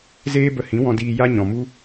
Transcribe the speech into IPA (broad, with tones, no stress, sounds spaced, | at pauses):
z eː˦ b ə˧ h ĩ˨˦ w ɔ̃˧ d iː˧ j a˦ ɲ ɔ̃˨ m u˦